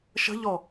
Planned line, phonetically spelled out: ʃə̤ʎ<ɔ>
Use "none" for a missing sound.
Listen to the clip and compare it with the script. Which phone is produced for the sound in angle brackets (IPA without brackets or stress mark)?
ɔ